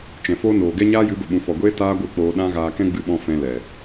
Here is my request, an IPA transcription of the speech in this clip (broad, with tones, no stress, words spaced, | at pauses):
t͡ʃɛ̃˨foː˦noː˨ ɡɛ˦ɲaː˦jɨ˨˦ bə˨ɓũ˨fɔ˨ɡʷeː˦ taː˦ɡʷɨ˦˨k͡poː˧ ɗã˦ ɣaː˧kɛ̃˦ɡ͡bɨ˧ɓɔ̃˧ fɛ̃˧lɛ˨